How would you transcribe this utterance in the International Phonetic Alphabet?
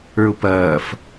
ə˞ ʊ̯ p ɐː f

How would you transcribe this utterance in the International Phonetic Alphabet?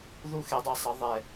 ð u˦˥ x e˨˥ dˤ a˧ sˤ ʌ˨˥ ðˤ ɛ˧

